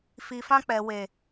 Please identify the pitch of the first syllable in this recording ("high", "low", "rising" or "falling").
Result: low